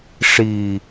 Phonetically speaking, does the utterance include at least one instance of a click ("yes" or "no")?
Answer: no